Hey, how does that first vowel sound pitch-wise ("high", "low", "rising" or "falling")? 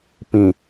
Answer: low